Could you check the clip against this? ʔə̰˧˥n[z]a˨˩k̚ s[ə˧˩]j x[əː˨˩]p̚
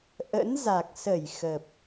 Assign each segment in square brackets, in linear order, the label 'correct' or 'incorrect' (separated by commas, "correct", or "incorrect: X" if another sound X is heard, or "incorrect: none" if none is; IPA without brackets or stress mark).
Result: correct, correct, incorrect: ə˨˩